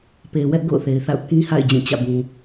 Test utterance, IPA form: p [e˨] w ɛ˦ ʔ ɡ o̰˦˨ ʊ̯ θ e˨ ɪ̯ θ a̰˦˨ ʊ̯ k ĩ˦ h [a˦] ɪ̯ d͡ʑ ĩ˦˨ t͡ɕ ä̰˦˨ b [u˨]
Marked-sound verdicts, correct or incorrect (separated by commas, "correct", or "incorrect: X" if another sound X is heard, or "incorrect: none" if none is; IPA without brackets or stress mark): correct, incorrect: a̰˦˨, incorrect: ũ˨